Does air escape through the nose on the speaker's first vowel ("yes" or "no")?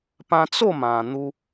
yes